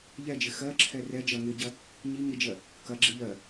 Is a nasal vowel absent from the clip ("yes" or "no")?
yes